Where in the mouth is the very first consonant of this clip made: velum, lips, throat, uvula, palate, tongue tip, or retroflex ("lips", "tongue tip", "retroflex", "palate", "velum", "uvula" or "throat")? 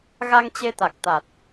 velum